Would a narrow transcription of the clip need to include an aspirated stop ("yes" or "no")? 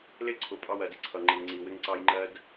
yes